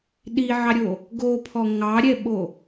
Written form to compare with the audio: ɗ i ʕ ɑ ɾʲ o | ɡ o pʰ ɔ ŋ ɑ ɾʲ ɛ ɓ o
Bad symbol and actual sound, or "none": none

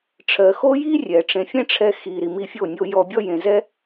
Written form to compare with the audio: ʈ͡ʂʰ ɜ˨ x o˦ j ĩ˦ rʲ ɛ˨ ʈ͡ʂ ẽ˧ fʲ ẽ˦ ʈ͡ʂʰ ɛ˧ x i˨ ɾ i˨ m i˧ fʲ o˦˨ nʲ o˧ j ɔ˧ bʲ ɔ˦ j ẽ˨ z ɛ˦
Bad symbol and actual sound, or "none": ĩ˦ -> i˦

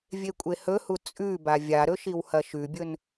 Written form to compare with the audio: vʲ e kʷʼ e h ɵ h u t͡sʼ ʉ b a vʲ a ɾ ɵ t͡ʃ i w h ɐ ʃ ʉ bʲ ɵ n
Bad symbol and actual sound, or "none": t͡ʃ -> ʃ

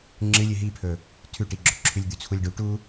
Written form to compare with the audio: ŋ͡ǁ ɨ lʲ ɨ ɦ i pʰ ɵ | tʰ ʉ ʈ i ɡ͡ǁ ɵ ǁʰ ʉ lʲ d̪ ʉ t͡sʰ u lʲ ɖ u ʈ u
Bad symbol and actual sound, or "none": none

